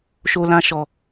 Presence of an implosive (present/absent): absent